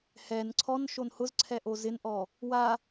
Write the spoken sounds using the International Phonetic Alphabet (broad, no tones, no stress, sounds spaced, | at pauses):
h ɛ n ǀʰ ɔ n ʃ o n h ʊ z ǀʰ ɛ ʔ o z ɪ n ʔ ɔ | w a